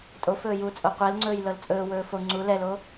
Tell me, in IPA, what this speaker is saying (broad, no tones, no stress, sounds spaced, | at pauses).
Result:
tʼ o f ɵː j u t͡sʼ o qʷ ɛ l ŋ͡ǀ ɵː j l ɤ l t͡sʼ ɵː w ɵː f o ŋ͡ǀ u l ɛ l o